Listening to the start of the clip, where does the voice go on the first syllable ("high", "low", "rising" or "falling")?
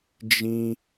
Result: high